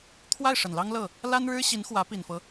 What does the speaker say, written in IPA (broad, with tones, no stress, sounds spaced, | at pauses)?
t̪ʰ w a˥˩ ɪ̯ ʂ ə˨˩ n l ɑ˥ ŋ l ɤ˥˩ | l a˥ n ɻ ɻ̩˥ ɕ i˧˥ n x w ä˧˥ p i˨˩ n f ɤ˦